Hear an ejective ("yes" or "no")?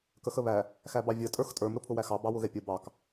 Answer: yes